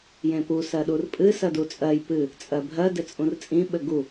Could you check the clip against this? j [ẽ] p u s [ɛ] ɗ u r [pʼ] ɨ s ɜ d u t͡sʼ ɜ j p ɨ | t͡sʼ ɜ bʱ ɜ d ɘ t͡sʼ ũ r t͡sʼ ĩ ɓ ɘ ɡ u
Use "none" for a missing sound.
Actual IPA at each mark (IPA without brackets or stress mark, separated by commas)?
ẽ, ɜ, pʼ